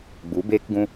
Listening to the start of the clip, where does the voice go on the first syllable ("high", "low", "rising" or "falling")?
rising